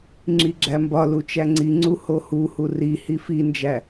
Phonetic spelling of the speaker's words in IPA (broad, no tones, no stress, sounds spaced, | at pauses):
ŋ͡ǁ i ɡ͡ǁ æ m b ɒ l u t͡ʃ æ ŋ͡ǀ i ŋ͡ǀ u h o h u h u r i h i f i n d͡ʒ æ